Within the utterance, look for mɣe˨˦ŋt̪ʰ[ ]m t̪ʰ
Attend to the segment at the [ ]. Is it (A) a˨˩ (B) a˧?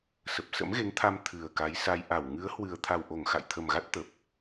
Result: B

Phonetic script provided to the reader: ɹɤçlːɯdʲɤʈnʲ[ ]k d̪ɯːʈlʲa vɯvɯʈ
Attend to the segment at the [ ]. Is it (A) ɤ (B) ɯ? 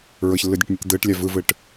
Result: B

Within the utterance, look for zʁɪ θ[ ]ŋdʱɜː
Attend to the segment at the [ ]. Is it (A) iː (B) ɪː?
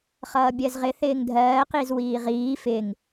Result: B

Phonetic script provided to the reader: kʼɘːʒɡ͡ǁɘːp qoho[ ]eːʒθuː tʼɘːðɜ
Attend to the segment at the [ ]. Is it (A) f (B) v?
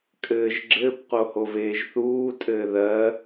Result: B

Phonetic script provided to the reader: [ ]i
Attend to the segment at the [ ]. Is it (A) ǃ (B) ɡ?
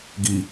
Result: B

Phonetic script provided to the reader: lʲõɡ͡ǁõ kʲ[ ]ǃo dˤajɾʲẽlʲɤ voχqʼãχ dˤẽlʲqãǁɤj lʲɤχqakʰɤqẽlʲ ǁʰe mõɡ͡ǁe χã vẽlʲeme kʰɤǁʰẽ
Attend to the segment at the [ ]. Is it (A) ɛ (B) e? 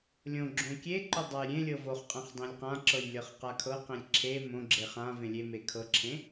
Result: B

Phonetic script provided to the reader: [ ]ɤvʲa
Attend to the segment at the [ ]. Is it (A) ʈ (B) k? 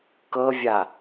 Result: B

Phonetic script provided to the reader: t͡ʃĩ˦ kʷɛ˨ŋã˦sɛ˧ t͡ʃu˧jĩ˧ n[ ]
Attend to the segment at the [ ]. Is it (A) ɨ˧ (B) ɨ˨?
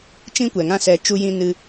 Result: A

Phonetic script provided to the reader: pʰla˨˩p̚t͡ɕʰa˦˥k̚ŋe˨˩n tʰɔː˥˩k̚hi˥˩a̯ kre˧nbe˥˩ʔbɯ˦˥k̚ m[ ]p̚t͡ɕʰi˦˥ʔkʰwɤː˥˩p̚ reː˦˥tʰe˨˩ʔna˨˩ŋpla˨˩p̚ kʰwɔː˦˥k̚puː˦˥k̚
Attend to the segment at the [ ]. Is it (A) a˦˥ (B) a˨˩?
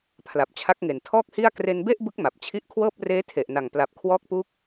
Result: B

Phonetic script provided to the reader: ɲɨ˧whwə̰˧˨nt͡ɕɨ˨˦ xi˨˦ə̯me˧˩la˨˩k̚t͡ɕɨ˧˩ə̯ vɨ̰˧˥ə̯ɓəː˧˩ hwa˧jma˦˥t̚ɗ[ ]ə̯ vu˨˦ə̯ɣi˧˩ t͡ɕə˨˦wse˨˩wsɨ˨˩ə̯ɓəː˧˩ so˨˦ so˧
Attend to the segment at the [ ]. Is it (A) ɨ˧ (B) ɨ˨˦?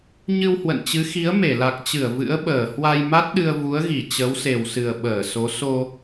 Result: A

